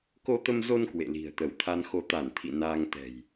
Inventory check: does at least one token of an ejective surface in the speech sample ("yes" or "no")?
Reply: no